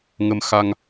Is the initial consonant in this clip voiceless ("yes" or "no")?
no